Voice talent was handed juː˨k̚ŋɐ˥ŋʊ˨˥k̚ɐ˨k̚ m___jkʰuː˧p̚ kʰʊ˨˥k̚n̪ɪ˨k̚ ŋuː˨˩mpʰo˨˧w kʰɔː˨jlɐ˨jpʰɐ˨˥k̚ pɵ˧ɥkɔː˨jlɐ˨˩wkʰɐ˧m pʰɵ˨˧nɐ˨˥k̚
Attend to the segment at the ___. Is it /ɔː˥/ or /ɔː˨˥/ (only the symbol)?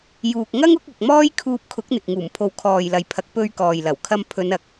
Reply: ɔː˥